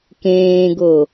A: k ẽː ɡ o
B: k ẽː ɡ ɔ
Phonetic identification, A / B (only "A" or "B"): A